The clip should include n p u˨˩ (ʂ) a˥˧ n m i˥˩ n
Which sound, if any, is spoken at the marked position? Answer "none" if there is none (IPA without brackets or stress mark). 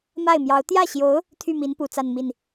t͡s